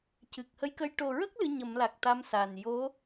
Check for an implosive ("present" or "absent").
absent